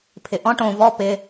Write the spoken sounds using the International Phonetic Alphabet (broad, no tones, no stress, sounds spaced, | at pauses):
pʰ ɪ ʔ ɔ̃ ʈ õ v ɔ p ɪ